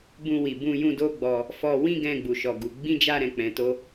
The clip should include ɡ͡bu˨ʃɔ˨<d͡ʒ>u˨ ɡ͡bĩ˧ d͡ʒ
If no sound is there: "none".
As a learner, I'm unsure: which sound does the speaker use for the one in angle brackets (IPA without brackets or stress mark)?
ɡ